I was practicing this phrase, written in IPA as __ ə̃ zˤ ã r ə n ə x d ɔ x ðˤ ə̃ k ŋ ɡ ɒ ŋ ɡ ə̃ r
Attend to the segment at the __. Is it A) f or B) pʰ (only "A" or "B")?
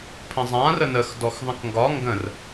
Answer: B